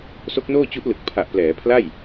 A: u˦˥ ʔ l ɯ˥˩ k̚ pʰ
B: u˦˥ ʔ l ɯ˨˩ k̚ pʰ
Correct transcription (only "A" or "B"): B